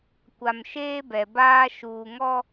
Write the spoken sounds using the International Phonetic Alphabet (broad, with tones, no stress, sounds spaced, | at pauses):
kʷ a˨ m ʃ eː˦ b ɛ˨ b aː˦ ʃ uː˨ ŋ ɔ˦